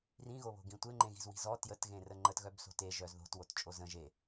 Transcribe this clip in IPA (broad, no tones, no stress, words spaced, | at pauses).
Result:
rĩɣoβo̤ ɡĩtʷeŋ͡ǃẽɣi̤z wi̤zɔ tjətɣẽrə ŋ͡ǃətɣœb so̤te ʒœzðo̤t wott͡ʃʼozə̃ ʒe